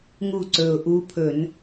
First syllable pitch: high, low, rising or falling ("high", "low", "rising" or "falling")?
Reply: falling